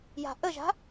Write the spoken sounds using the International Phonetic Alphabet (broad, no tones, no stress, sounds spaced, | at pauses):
j a̤ ʔ ə ʒ a̤